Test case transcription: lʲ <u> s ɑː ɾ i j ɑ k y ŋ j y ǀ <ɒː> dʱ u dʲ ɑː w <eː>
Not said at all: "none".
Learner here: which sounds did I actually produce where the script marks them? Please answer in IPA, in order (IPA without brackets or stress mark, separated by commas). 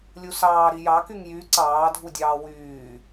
u, ɑː, yː